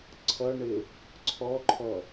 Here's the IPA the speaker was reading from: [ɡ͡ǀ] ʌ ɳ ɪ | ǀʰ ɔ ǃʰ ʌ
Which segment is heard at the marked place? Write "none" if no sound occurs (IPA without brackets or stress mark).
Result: ǀʰ